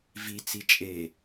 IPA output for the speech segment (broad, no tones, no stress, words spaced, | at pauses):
vi t͡sit͡ʃʼe